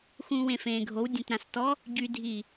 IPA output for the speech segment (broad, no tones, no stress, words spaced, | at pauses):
xũːwẽfẽːɡʱow dʲẽtɾãstɔ | ɟydʱiː